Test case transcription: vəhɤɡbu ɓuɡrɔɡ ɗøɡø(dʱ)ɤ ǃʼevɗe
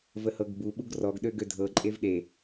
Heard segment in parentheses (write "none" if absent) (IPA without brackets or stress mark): dʱ